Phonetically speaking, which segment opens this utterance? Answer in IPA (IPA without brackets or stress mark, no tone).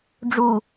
ɖ͡ʐ